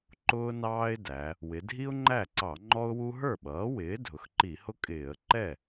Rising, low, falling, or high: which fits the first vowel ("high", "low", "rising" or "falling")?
high